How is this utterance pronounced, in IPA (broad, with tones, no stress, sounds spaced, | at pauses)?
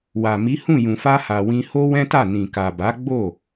w a˨ m i˨˦ h ũ˦˨ j ũ˨ f a˧ h a˨ w ĩ˧ h o˦ w ɛ̃˦ t a˦˨ n ĩ˨ k a˨ b a˨˦ ɡ͡b o˦˨